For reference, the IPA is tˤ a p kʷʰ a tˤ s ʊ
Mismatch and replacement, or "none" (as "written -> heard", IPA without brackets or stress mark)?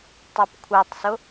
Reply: none